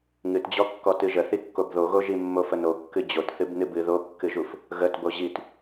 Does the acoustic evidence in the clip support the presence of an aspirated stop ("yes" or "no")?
no